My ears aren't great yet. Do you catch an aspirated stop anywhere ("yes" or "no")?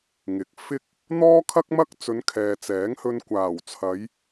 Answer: yes